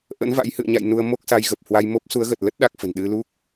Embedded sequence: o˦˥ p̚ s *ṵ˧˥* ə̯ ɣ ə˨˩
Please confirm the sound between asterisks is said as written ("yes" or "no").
no